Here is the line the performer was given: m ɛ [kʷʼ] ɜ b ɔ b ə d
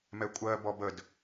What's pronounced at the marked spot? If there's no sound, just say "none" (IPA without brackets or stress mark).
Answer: kʷʼ